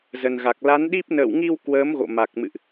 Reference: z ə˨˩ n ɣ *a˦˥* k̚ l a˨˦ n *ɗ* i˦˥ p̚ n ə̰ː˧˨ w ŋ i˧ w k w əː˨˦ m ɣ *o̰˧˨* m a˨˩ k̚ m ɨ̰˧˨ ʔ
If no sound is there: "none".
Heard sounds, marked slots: a˨˩, ɗ, o̰˧˨

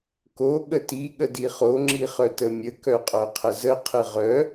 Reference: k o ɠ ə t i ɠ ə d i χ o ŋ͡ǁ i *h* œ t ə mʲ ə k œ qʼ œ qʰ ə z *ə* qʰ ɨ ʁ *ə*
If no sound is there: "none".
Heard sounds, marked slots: χ, ə, œ

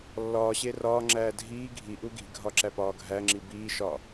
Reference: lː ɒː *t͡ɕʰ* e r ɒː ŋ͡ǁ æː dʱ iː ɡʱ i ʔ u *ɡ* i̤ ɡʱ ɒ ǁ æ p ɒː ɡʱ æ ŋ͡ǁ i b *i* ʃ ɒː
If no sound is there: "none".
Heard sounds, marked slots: ɕ, ɡ, iː

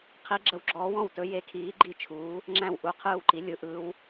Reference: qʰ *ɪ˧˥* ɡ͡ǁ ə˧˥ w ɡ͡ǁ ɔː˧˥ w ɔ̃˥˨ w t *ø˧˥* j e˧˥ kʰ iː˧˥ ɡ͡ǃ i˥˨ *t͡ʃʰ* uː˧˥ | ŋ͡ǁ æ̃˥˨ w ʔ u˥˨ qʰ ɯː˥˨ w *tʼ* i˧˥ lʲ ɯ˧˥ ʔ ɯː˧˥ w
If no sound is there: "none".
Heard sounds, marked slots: i˧˥, ɵ˧˥, t͡ʃʰ, ǃ

